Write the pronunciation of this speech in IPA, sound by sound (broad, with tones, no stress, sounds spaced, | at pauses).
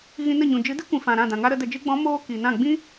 ɣ ĩ˧ n ə˦˨ ɲ ũ˨ d͡ʒ ɨ˨˦ d ɨ˦ kʷ ĩ˨ f ã˨ ɾ ã˦˨ d ã˨ ŋ a˦ ɾ ə˨˦ d ə˨ d͡ʒ ɨ˧ ɡ͡b ɔ̃˨˦ m oː˧ k i˨ n ã˦˨ ɡ͡b ĩ˦